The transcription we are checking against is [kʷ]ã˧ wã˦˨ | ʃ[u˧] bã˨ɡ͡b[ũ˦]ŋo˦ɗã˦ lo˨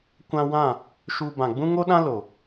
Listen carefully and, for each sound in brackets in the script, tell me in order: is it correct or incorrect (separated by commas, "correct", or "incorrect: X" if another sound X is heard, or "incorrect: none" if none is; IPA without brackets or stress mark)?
correct, correct, correct